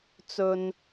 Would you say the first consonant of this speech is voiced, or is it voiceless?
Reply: voiceless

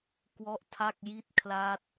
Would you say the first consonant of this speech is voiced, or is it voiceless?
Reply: voiceless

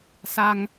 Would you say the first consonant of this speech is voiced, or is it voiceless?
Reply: voiceless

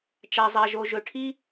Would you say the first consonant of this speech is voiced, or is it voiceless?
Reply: voiceless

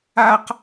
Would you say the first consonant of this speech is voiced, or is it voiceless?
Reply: voiceless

